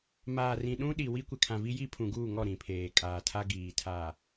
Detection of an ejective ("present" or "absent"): present